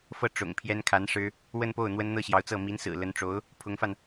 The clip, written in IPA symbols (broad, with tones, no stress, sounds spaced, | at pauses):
f ɤ˥˩ ʈ͡ʂ ʊ̰˨˩ ŋ pʰ j ɛ˥ n kʰ a˧˥ n ʂ ɻ̩˥ | w ə˥˧ n p o˥˩ ʊ̯ n̪ w ə˥ n n̪ ɤ˥˩ ɕ j ɑ˧˥ ʊ̯ t͡s ɤ˥˩ m i˧˥ n s ɹ̩˨˩ l ə˧˥ n ʈ͡ʂ o˧˥ ʊ̯ | pʰ ʊ˧˥ ŋ f a˧ n